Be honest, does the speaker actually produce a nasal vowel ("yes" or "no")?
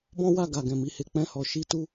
yes